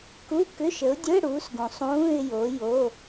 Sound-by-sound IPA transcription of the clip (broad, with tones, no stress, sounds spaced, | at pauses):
k u˧˥˧ k ʏ˧˥˧ ʃ ə˨˥ ʊ̯ dʲ ɵ˧˥˧ ɪ̯ ɽ u˨˥ s ɡ ũ˨ sˤ ũː˧˥˧ ɪ̯ j o˨˥ j o˧˥˧